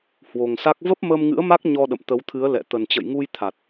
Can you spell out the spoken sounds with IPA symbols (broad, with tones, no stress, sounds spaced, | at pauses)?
h w o˨˩ ŋ s a˦˥ k̚ v ə˦˥ p̚ m əː˧ m ŋ ɨ̰˧˥ ə̯ m a˦˥ k̚ ɲ ɔ˧ ɗ ə̰˧˨ m t̪ ə˨˦ w t̪ʰ ɨ˨˦ ə̯ l ɛ̰˧˨ t̪ ə˨˩ n t͡ɕ ə̰˧˨ j ŋ u˧ j t̪ʰ a˨˩ t̚